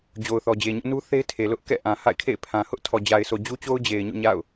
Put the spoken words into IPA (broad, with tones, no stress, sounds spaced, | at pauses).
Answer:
d͡ʑ o˨ ʊ̯ θ ɔ˨ d͡ʑ e˨ ɲ ʊ˦ ʔ n u˦ θ e˦ ɪ̯ tʰ e˨ l ʊ˦ ʔ k ɛ̰˦˨ ʔ ã˨ h a̰˦˨ ɪ̯ kʰ ḛ˦˨ ɪ̯ pʰ ã˨ h ʊ˦ ʔ tʰ ɔ˨ d͡ʑ a˨ ɪ̯ sʰ o˨ d͡ʑ u˦ t͡ɕ o˦ ʊ̯ d͡ʑ e˨ ɪ̯ ɲ o̰˦˨ ɲ a̰˦˨ ʊ̯